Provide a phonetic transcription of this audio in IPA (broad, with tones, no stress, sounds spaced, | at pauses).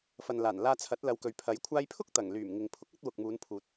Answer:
f ɐ˨ n l aː˨˩ n l aː˧ t͡sʰ ɐ˨˥ t̚ l ɐ˨˧ w k ɵ˨ ɥ pʰ ɐ˨˥ j kʷʰ aː˧ j pʰ ʊ˥ k̚ t̪ ɐ˨˩ ŋ l yː˨˩ m ŋ ɪ˨ ŋ pʰ ʊ˨˥ k̚ ɐ˥ t̚ w ʊ˨ k̚ m uː˨˧ n pʰ uː˨ t̚